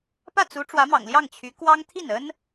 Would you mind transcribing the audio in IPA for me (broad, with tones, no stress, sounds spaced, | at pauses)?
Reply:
p ä˥˩ t͡s u˧˥ ʈ͡ʂ w ä˧˥ m ɑ̰˨˩ ŋ l j ɑ˥˩ ŋ t͡ɕʰ y˧˥ k w ɑ˥ ŋ t̪ʰ i˥˩ n ə˥ n